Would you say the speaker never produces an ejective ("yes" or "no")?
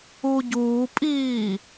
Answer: no